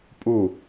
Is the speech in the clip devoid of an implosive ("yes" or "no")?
yes